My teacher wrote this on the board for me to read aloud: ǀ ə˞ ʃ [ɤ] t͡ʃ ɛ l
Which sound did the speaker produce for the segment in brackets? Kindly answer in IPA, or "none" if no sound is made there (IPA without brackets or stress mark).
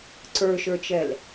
ə˞